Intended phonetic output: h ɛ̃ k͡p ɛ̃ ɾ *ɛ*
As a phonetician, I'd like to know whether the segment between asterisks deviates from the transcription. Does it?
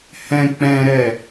no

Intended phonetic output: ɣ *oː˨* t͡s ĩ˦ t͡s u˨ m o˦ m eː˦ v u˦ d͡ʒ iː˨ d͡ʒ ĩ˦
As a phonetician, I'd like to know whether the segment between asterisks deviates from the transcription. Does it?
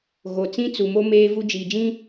yes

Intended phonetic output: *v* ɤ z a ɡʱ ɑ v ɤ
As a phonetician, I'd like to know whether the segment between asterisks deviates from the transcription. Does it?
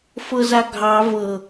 yes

